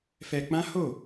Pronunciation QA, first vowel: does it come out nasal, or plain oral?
oral